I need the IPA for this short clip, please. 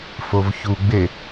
f o v ç u ɡ͡b e

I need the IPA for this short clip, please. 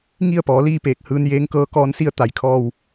ŋ i˥˨ ə̯ p ɔː˩˧ l iː˥˨ p eː˧˩ k̚ h ɯː˧ n j eː˧˥ ŋ k ɤː˧˥ k ɔː˧˥ n s i˥˨ ə̯ t̪ a˩ j kʰ ɔː˧˩ w

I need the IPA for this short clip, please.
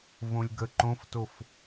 v õ lʲ ɡ ə ǃ õ f t o f

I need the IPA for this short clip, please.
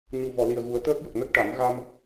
ɲ u˨˩ v ɔ˨˩˨ l i˨˩ ə̯ ɣ u˨˩˦ ə̯ t̪ əː˦˥ k̚ j ə˨˩ k̚ n ə˦˥ k̚ ʈ a˨˩˦ m ɣ a˧ m

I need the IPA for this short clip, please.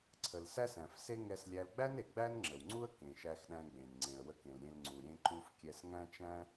ǀʰ ə˩ l s æ˥ s æ̃˩ f s e˥ ŋ ɛ˧ s lʲ æ˧ l ɡ͡b æ˥ n e˩ ɡ͡b æ˥ n ŋ͡ǁ ə˩ w ŋ͡ǀ u˥ ə̯ k ẽ˩ ʃ æ˧ x ɗ æ̃˧ ɡ͡b ẽ˩ n ŋ͡ǀ ẽ˩ ə̯ w ə˧ k ẽ˩ l ɾʲ ẽ˧ l ŋ͡ǀ u˩ ɾʲ ẽ˧ ǃ u˧ f kʲ ɛ˧ s ŋ æ̃˥ t͡ʃ æ̃˥

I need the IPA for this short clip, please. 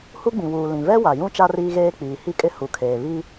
h u˦ ɡ͡b ĩ˨ w uː˨ l ĩ˨ v ɛ˦ w a˨ j ũ˦ t͡ʃ a˦ r iː˦ ɣ eː˦ k͡p iː˨ h i˦ kʼ ɪ˦ h u˨ kʰ eː˨ β i˦

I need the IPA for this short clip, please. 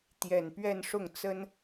t̪ j ɛ˨˩ n p ɥ ɛ˥˧ n ʂ ʊ˥˩ ŋ t͡s ə˥ n

